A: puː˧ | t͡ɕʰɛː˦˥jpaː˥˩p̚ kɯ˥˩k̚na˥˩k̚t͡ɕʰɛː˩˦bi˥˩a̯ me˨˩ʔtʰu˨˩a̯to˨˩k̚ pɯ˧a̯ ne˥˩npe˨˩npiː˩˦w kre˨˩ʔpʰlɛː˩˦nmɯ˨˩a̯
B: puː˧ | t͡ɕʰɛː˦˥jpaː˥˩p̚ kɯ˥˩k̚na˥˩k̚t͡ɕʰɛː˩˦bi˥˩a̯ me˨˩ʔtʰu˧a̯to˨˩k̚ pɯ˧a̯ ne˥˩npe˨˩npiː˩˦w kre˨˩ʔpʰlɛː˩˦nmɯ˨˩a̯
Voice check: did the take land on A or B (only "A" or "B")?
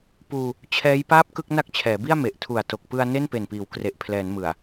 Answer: A